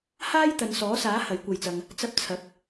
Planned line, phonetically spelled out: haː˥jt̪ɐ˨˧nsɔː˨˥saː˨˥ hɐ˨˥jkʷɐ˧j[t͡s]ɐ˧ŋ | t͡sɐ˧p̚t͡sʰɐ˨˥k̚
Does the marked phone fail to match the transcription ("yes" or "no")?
no